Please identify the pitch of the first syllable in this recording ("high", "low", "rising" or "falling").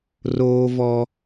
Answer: high